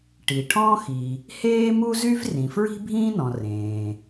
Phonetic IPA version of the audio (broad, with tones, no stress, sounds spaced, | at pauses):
ʈ i˩ ʈʰ ɔ̃˥ x i˩ | h eː˥ m u˥ z y˥ v r ĩ˩ f ɹ i̤˥ bʱ ĩː˥ n ɔ̃˩ r ẽː˩